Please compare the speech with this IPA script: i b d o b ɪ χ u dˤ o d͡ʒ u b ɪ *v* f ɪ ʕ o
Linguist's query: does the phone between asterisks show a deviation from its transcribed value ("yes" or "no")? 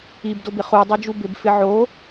yes